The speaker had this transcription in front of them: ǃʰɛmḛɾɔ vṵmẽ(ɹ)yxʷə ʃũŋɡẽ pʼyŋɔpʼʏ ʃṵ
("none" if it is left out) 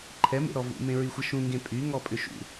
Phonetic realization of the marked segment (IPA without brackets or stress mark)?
ɹ